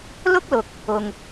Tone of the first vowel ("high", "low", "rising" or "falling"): high